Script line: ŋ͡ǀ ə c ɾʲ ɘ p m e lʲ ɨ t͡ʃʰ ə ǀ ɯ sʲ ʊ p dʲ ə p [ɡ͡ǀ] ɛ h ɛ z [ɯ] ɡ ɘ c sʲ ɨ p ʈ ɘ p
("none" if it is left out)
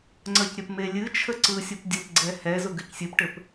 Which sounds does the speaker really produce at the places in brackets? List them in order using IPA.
ɡ͡ǀ, ʊ

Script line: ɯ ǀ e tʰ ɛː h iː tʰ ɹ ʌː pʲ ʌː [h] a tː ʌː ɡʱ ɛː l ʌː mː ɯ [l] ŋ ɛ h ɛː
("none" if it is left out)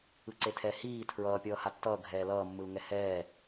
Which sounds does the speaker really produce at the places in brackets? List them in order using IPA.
h, l

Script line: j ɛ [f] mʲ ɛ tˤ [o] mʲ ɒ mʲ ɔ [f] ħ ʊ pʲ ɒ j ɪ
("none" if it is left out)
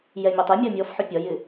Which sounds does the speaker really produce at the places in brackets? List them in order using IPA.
none, u, f

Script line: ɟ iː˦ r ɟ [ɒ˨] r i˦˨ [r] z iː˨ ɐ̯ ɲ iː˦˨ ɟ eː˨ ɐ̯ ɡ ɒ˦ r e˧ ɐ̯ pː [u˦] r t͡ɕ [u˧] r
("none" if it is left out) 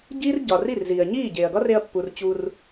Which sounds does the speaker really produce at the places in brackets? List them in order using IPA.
ɒ˨, r, u˨, u˧

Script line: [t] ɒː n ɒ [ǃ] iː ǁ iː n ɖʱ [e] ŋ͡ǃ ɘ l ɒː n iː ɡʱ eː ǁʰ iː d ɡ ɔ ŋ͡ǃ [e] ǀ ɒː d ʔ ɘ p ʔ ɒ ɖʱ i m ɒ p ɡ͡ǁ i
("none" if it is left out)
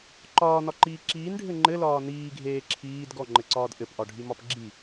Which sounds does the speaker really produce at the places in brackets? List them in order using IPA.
ǃ, ǃ, ɘ, ɘ

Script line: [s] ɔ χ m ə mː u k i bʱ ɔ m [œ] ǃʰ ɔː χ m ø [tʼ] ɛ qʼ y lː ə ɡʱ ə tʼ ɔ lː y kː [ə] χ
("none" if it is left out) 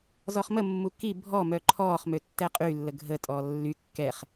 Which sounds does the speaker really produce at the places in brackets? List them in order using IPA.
z, œ, tː, ɛ

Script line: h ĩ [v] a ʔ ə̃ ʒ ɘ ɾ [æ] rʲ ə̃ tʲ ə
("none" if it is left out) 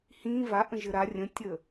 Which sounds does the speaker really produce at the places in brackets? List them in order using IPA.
v, a

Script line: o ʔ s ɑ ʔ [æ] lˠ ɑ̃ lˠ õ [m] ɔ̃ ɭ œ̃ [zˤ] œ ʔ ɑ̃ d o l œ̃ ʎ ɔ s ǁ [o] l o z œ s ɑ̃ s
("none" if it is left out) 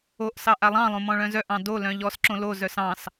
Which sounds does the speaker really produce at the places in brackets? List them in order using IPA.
a, m, z, õ

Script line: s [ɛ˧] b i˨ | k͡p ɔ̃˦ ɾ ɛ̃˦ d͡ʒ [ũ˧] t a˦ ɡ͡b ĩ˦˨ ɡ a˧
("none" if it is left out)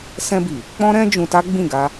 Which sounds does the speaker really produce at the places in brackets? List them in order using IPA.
ɛ̃˧, ũ˧

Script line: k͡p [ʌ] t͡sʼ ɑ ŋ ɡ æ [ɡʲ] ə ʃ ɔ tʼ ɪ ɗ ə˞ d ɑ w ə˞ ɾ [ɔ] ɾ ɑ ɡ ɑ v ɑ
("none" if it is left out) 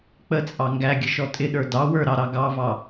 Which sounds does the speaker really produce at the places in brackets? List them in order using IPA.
ə, ɡʲ, ɑ

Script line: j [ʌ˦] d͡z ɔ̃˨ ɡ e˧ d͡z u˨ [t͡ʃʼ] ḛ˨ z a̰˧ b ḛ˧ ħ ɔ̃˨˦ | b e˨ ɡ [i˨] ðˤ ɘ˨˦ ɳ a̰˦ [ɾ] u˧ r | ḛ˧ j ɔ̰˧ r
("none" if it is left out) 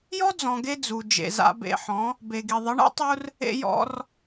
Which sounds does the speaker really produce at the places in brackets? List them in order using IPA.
ɔ˦, d͡ʒ, i˨, tˤ

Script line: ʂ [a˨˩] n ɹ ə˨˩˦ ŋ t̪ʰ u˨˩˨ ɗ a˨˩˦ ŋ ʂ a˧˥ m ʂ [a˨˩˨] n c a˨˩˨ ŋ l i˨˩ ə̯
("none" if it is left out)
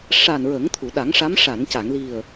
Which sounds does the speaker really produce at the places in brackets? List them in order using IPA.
a˨˩, a˨˩˨

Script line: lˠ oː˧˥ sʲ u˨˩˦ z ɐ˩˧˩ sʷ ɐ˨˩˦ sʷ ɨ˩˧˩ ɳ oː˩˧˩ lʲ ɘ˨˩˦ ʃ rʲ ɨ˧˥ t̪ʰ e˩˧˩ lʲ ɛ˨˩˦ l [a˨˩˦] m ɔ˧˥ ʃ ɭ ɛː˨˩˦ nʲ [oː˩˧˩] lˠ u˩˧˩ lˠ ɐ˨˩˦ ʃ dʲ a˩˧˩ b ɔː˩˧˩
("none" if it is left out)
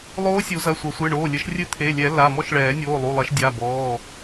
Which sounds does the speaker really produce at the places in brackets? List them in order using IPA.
a˩˧˩, oː˩˧˩

